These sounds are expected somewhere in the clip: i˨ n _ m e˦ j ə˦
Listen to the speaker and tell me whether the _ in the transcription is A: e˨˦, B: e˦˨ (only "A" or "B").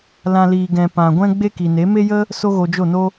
A